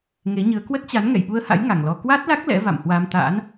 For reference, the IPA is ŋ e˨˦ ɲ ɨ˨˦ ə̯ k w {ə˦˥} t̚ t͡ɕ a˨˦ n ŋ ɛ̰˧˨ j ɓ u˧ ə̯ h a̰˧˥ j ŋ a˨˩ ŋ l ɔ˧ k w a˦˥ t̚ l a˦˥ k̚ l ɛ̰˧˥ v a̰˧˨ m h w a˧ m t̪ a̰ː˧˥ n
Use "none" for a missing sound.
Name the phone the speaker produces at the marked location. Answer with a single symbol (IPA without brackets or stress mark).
ə˦˥